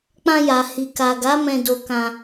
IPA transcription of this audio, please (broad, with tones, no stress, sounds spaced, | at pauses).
k͡p ã˧ j a˨ h i˨ k a˨ ɡ a˨˦ m ɛ̃˧ d o˧ k ã˧